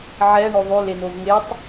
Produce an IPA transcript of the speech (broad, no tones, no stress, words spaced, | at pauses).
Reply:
ʕɛ ɳoðˤʉ lenovŋetˤ